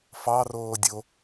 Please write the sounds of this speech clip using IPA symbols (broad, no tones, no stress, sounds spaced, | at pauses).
f ɑ r oː dʲ o